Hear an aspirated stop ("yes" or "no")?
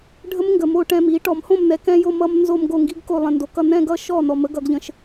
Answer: no